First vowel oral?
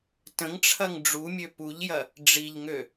no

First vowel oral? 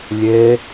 yes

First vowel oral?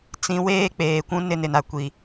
no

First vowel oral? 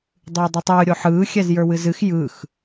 yes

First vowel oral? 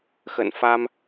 yes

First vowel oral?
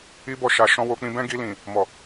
yes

